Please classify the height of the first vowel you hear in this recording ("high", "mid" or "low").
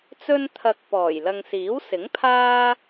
mid